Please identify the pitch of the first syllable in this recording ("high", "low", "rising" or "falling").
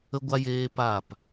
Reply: high